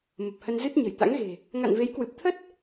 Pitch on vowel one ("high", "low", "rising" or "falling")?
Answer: low